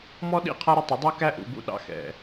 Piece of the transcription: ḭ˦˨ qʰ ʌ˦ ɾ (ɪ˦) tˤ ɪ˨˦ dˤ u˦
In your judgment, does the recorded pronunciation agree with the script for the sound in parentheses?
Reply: yes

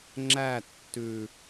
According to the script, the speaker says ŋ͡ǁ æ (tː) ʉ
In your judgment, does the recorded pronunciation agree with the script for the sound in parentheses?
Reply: yes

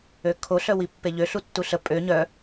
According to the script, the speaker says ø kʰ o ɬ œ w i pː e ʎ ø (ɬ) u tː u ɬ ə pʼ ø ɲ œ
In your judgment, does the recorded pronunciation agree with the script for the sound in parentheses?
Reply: yes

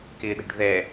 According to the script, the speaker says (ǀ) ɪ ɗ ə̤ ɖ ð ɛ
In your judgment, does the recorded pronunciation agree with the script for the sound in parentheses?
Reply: no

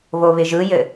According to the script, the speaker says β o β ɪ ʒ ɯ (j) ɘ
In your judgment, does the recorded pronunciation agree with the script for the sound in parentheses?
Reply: yes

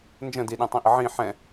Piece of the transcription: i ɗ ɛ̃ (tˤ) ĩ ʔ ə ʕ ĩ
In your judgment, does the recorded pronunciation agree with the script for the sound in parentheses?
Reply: yes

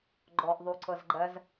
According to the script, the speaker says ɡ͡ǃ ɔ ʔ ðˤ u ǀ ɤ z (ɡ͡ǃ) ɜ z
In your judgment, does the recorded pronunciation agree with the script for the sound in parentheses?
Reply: yes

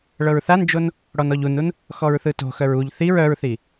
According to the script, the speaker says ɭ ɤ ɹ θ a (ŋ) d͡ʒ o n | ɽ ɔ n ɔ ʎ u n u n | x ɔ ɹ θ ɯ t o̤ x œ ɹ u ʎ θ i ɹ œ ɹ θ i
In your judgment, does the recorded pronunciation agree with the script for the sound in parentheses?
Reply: no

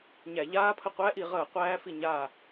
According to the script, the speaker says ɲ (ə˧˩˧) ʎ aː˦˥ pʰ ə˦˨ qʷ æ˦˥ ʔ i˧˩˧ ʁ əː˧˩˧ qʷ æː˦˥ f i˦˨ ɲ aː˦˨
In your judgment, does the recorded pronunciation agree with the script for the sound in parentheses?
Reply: no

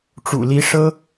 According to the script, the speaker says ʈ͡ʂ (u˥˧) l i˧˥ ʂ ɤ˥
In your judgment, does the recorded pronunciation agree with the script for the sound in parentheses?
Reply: no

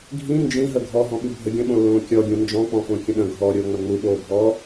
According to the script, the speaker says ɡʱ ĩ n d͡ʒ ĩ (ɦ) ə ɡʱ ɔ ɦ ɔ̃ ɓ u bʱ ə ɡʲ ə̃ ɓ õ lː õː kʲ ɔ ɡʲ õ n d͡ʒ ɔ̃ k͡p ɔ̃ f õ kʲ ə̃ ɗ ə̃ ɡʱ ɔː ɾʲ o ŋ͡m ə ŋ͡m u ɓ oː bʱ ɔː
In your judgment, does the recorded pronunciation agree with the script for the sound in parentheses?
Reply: yes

